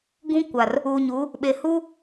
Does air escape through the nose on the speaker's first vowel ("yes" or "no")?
yes